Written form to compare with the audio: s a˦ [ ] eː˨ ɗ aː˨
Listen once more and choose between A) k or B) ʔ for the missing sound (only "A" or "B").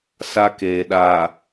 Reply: A